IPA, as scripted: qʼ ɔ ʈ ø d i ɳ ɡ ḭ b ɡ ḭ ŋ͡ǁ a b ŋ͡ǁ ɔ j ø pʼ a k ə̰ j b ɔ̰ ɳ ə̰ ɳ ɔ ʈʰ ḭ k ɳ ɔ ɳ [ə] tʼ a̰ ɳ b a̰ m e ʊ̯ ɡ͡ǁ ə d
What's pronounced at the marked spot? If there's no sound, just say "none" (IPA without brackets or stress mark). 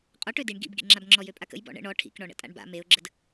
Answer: ə̰